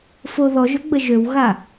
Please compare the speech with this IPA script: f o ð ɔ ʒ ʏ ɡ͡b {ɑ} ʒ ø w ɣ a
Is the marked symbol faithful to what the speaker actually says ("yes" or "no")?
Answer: no